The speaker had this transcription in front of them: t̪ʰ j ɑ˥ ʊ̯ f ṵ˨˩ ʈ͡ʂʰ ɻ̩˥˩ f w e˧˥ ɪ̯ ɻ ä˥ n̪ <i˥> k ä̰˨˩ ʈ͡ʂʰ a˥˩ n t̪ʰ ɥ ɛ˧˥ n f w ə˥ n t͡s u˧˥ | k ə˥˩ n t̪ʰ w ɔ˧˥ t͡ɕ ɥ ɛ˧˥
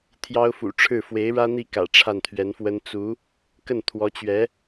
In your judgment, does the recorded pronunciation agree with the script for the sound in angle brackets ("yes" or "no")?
no